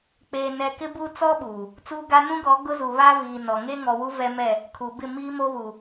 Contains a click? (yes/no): no